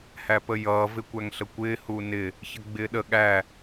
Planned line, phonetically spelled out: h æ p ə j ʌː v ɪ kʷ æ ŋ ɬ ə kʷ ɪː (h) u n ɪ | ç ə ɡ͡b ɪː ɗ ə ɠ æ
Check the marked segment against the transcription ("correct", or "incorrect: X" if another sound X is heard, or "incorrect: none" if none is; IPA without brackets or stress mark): correct